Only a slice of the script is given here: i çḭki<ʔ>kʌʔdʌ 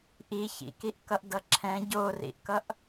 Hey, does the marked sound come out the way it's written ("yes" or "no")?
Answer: yes